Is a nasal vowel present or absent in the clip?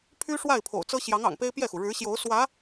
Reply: absent